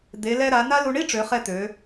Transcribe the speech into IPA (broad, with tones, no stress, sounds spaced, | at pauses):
d̪ e˩˧ l ɛ˧ ɾ a˩˧ n a˥ l u˧ ɳ i˥ ʈ͡ʂ ø˩˧ χ ɛ˧ t̪ ø˩˧